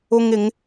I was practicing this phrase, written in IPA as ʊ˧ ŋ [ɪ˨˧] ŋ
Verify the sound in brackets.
correct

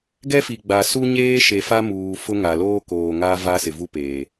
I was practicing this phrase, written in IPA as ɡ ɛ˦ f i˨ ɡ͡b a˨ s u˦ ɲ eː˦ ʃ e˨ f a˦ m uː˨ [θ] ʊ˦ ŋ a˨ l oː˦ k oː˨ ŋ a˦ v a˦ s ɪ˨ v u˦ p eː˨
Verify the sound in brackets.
incorrect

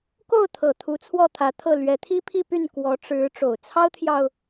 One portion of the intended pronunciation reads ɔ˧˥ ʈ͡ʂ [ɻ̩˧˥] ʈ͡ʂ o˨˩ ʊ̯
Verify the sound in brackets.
correct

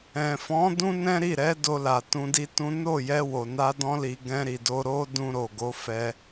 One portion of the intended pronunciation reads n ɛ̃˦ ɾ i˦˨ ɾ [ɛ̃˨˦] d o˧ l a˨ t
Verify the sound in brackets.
incorrect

